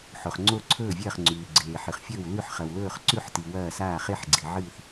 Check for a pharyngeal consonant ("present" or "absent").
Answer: present